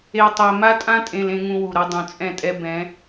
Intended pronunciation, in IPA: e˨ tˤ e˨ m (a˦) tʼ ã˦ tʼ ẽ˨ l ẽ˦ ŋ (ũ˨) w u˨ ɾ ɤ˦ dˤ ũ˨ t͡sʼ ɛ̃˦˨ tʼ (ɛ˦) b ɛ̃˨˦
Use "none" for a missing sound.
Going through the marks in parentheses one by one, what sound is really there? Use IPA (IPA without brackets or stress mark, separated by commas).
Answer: a˦, ũ˦, ɛ˦